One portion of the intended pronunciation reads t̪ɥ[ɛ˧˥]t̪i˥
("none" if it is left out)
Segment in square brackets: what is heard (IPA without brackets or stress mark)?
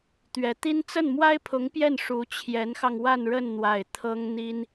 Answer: ɛ˧˥